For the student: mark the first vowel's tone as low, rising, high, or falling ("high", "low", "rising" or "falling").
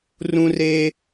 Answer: high